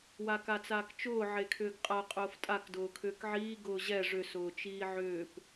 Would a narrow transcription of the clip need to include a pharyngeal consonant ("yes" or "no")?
yes